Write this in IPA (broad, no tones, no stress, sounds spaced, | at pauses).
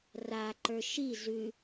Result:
r a ǃ ə˞ ʃ i z ʉ